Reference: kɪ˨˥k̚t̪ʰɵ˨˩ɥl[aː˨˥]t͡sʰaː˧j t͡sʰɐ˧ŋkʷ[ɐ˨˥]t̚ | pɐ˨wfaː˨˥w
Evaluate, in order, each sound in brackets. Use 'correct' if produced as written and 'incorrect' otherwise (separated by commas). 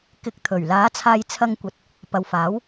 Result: correct, correct